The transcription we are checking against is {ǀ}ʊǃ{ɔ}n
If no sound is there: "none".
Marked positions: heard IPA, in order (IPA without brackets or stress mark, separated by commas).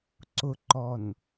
ǀ, ɔ